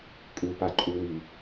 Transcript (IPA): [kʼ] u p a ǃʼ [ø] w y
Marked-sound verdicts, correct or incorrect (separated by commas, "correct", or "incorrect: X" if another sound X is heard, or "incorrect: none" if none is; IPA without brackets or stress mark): correct, incorrect: u